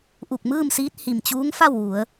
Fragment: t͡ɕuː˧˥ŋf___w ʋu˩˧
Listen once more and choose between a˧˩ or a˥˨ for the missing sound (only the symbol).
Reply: a˥˨